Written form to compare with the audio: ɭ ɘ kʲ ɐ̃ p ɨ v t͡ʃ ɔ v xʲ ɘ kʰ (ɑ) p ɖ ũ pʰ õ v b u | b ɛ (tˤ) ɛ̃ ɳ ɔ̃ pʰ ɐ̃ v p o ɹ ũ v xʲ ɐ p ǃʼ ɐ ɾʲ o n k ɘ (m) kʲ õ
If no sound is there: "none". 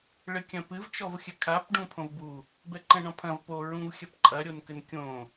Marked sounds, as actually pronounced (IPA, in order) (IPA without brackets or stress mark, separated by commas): a, ǃ, n